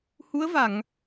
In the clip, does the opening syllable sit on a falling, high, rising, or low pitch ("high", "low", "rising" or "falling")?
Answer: rising